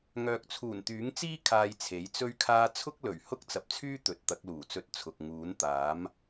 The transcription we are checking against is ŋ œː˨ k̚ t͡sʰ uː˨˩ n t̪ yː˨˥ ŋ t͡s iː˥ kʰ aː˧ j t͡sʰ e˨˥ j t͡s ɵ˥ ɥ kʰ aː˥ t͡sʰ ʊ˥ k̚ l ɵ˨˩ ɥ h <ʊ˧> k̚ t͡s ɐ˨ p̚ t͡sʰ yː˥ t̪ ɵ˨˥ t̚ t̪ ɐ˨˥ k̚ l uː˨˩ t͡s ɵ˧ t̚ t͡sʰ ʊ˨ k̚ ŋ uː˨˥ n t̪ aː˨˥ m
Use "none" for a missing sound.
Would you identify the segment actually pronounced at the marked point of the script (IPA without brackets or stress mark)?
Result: ʊ˥